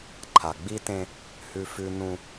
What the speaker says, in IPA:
ǃʰ a˨ ɡ͡b i˦ t ẽ˦ | h ʉ˦ f ʉ˦ n ũ˦

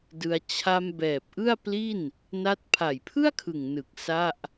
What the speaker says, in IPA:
d ɯ˧ a̯ t͡ɕʰ a˧ m b ɛː˨˩ p̚ ʔ ɯ˥˩ a̯ p l i˥˩ n | n a˥˩ t̚ pʰ a˨˩ j pʰ ɯ˥˩ a̯ kʰ ɯ˨˩ ŋ n ɯ˨˩ k̚ s a˥˩ ʔ

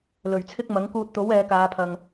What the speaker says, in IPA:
l ɵ˨˩ ɥ t͡sʰ ɪ˥ k̚ m ɐ˨˥ ŋ k uː˧ t̚ t̪ o˨˥ w ɛː˨˧ k aː˨˧ pʰ ɐ˨ ŋ

